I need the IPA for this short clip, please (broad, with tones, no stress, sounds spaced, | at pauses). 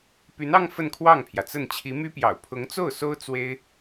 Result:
p y˧˥ n ɑ˥ ŋ f ə˥˧ n kʰ w ɑ˥˩ ŋ pʰ j ä˩ t͡s ə˥˩ n t͡ɕʰ i˧˥ m y˥ p j ɑ̰˨˩ ʊ̯ pʰ ʊ˧˥ ŋ t͡s o˥˩ ʊ̯ s o˥ ʊ̯ t͡s w e˥ ɪ̯